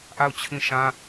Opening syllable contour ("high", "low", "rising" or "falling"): falling